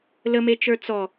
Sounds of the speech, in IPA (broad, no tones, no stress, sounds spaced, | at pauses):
l ə m e t͡ʃ ə˞ t͡s ɔ